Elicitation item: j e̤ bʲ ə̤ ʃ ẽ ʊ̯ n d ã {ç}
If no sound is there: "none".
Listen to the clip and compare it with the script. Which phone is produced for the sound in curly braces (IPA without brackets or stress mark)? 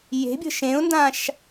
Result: ʃ